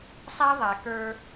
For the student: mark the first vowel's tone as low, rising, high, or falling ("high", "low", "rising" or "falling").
high